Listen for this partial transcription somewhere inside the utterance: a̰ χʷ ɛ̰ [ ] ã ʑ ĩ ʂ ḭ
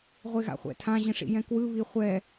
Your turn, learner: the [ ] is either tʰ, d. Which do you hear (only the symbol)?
tʰ